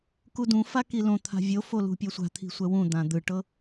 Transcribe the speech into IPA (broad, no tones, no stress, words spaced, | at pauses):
kudũfa kilõt̪ʰa̤ vʲofo lṳpʲɔsʷa̤t̪ʰi̤ sʷɛwũd̪ã d̪ɯʈɤ